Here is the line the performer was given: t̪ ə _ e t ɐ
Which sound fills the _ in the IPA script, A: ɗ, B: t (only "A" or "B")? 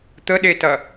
A